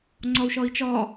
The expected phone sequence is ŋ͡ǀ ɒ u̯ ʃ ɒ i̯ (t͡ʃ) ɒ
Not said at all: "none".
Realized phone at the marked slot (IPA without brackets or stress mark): t͡ʃ